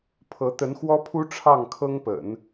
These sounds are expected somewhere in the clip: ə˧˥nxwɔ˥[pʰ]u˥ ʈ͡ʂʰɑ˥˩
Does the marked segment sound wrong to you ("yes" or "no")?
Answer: no